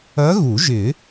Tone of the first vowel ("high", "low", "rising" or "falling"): rising